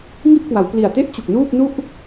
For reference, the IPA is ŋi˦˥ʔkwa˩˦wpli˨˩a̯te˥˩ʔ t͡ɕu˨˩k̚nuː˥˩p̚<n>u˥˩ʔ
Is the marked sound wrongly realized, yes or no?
no